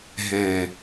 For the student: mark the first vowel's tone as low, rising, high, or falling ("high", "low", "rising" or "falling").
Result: low